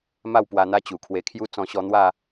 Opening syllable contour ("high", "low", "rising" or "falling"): falling